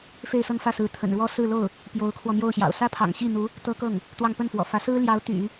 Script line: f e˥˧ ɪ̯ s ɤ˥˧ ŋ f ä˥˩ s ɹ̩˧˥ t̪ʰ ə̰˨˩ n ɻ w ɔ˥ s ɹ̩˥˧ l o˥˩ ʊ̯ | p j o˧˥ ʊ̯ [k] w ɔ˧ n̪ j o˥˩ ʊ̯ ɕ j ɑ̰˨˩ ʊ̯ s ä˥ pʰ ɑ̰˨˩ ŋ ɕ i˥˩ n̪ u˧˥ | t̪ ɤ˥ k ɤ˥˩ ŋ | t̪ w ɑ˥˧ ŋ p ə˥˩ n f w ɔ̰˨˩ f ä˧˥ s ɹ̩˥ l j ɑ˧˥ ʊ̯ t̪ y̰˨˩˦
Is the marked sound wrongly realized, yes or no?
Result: yes